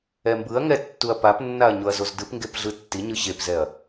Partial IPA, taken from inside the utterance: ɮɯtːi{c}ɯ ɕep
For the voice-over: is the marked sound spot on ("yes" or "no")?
no